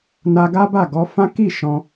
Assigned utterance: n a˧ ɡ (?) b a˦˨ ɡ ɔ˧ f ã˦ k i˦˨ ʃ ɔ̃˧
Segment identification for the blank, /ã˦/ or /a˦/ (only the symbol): a˦